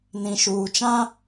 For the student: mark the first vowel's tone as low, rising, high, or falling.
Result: low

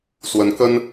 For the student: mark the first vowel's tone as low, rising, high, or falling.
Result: rising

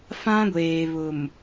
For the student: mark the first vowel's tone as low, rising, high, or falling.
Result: high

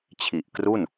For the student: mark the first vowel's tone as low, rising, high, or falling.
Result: low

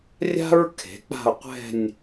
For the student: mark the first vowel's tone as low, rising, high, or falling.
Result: high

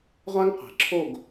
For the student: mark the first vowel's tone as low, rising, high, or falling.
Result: high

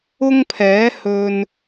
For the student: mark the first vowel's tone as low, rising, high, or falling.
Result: high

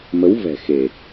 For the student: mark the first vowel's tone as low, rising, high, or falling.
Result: rising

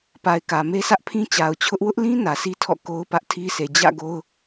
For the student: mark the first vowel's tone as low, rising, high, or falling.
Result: low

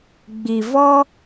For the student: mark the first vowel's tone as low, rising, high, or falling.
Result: low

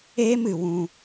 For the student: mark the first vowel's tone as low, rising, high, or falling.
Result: high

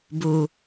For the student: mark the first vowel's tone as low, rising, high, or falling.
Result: low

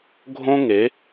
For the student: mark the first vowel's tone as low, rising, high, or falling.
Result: high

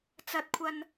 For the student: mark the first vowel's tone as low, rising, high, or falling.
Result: low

